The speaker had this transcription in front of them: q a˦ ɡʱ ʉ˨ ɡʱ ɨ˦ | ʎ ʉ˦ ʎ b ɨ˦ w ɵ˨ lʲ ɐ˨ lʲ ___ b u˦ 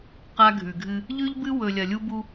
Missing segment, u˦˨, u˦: u˦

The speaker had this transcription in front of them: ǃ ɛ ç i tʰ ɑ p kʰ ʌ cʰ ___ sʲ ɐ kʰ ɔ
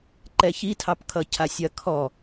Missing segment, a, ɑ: a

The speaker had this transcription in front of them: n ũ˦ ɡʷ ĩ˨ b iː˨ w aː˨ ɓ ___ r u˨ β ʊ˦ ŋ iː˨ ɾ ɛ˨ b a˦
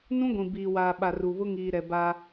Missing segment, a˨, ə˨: a˨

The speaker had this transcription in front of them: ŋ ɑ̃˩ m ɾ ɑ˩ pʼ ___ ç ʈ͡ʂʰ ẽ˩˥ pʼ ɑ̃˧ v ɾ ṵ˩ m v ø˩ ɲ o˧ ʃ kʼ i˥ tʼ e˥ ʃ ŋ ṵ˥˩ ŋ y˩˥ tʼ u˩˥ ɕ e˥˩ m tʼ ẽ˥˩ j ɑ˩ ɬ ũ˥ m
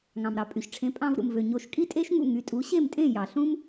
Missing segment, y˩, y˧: y˩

